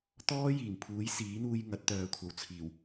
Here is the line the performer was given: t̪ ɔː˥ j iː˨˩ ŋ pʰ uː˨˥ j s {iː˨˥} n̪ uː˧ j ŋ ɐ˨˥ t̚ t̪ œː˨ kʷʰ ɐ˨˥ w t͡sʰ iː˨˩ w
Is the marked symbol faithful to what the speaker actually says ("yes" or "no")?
yes